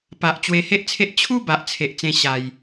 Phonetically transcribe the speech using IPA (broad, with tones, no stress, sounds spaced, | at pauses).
p a˨ ʔ t͡ɕ w e˧ h e˦ ʔ t͡sʰ e˦ ʔ t͡ɕʰ u˦ b a˨ ʔ t͡sʰ e˨ ʔ t͡s ẽ˧ ɕ a˨˩ j